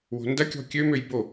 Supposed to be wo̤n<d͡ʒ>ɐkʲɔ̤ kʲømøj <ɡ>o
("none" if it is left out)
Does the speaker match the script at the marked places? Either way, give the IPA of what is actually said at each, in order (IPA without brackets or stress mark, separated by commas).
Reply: d, b